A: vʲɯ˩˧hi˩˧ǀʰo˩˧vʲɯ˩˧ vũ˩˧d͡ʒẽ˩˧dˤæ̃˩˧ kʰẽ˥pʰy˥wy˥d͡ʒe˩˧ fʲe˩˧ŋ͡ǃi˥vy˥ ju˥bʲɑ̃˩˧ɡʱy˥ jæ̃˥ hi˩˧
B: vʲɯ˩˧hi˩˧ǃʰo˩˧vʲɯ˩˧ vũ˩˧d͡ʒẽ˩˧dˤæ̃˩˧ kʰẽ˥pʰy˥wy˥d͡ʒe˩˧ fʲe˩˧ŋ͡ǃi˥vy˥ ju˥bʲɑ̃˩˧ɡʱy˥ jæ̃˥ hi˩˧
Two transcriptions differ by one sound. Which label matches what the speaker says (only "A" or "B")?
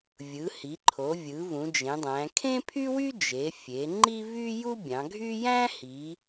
B